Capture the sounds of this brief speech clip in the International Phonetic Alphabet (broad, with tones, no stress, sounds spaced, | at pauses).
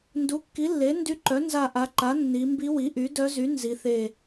n d u˩˥ kː i˩˥ lː e˩˥ n d y˧˥ ǃ œ˩˥ n z a˧˩ ʔ a˩˧ ǃ a˩˥ nː i˩˧ m b i˧˥ w i˩˥ ʔ y˩˥ d œ˧˥ z y˩˥ n z i˩˧ θ e˧˩